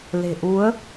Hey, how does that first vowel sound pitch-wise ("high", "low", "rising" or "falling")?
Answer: low